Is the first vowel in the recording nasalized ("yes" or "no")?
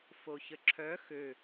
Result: no